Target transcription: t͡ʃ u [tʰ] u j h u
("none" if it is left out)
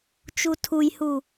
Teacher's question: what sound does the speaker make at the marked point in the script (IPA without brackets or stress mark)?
tʰ